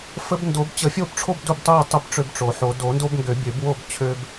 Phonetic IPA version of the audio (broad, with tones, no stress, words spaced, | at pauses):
fə˦b ndo˨˩˦bt͡ɕə˨˩˦fʲo˦bʈ͡ʂʰo˥˨b du˥˨btˤu˥˨tˤə˦b ʈ͡ʂø˦bʈ͡ʂo˨˩˦ħo˨˩˦ do˨˩˦ndo˦bŋɡø˨˩˦bʲø˨˩˦b wo˥˨b t͡ɕʰø˦b